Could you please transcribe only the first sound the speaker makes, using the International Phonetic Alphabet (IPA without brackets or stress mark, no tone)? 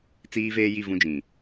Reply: t͡s